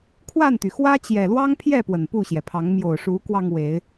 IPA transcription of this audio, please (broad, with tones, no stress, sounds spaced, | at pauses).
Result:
kʰ w a˥˨ n t̪ y˩ x w ä˦ t͡ɕ j ɛ˨˩ l w ɑ˦ ŋ pʰ j ɛ˥˨ p w ə˨˩ n p u˥˨ ɕ j ɛ˩ pʰ ɑ˨˦ ŋ m j o˨˩ ʊ̯ ʂ u˨˦ k w ɑ˧ ŋ w e˨˦ ɪ̯